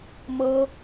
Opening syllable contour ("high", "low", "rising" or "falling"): high